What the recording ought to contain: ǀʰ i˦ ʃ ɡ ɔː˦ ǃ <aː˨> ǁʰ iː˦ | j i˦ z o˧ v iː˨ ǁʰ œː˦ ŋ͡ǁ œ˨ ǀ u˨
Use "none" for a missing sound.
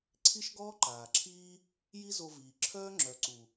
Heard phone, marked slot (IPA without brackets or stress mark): aː˨